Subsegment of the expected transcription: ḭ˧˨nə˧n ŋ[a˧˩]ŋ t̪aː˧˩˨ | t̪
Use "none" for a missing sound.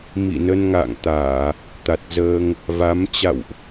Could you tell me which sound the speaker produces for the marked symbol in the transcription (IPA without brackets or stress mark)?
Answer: a̰˧˨